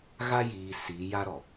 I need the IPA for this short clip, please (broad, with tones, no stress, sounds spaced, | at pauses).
ɣ a˦ j iː˨ s iː˨˦ j a˦ ɾ ɔ˨